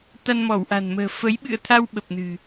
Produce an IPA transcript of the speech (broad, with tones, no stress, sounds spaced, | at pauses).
t̪ a˧ n m ɔ˧˩ w ʔ a̤˨˩ n m ə̤ː˨˩ f ə˨˦ j ɓ ɨ̰˧˨ ə̯ t̪ʰ a˧ w ɓ ə˨˩ p̚ n ɨ̤˨˩